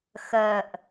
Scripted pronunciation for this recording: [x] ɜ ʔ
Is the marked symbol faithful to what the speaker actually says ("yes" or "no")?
yes